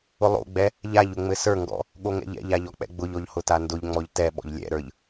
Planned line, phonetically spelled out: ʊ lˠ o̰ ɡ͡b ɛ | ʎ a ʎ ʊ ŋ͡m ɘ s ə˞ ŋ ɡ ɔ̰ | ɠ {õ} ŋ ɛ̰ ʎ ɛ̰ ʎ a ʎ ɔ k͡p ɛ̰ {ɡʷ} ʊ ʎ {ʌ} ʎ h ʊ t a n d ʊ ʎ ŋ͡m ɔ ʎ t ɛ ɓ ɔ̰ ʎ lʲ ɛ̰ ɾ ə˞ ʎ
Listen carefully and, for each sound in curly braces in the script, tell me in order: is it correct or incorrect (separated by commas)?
incorrect, incorrect, incorrect